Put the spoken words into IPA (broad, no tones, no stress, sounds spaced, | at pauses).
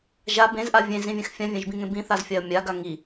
ʒ a b ẽ z ʔ a vʲ ẽ z ĩ vʲ ẽ x fʲ ã vʲ ẽ ʒ b ĩ ŋ ẽ b ĩ θ a z fʲ a ə̯ mʲ a ɡ a ŋ i